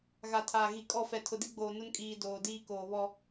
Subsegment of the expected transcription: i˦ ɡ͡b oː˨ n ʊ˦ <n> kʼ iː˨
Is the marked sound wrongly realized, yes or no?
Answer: no